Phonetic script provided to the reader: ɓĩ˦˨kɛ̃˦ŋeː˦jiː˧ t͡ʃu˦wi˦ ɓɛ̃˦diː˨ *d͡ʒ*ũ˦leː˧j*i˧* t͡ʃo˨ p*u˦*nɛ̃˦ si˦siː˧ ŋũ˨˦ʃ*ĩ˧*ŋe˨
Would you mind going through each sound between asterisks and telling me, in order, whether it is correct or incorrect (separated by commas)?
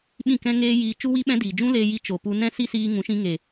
correct, correct, incorrect, correct